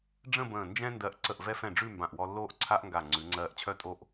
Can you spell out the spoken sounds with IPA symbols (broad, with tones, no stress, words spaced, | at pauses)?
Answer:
ɖ͡ʐə̃˥˧ bə̃ː˧˩nd͡ʒɛ̃˥ndɜ˧ʔ ǀə˧˩ʔvɛ˧fɛ̃˧˩ ɖ͡ʐʉ˥˧mbã˧˩ʔwɔ˧lːoː˥ʔ ǀʰa˥ʔŋɡa˧˩ ŋ͡ǀʉ˩˧ŋ͡ǀɜː˧ʔt͡ɕʰœ˥tʼo˥˧ʔ